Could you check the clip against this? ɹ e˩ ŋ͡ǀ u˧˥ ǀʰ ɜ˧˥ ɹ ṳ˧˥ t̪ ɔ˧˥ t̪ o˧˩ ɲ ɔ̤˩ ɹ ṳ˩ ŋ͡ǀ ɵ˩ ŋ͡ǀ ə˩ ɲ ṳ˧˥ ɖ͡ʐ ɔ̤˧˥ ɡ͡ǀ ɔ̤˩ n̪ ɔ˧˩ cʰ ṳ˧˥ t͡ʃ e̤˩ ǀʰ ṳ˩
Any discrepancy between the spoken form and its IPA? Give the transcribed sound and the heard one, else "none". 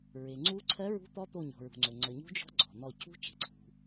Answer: ɖ͡ʐ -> d͡ʒ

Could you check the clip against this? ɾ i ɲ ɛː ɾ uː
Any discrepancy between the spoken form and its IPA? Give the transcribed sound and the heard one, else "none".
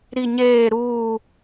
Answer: ɛː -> eː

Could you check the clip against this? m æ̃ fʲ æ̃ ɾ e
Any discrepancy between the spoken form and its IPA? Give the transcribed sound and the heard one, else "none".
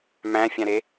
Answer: none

